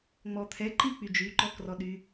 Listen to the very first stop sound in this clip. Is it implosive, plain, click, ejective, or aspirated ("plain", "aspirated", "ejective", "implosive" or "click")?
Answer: aspirated